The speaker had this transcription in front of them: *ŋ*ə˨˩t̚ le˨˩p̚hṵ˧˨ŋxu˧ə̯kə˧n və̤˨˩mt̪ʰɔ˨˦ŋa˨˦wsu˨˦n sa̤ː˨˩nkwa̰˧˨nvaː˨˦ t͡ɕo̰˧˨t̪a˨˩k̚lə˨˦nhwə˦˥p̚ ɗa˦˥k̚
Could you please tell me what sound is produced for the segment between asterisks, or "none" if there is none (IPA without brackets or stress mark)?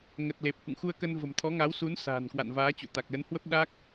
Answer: ŋ